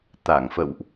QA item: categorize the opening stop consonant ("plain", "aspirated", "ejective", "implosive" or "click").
plain